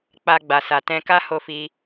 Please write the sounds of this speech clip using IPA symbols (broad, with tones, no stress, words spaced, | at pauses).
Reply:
k͡pa˧ɡ͡ba˨sa˨ tɛ̃˧ka˦ ho˦fi˦